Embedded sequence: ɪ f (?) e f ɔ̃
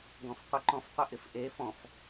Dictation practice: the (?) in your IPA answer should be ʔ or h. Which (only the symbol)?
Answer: ʔ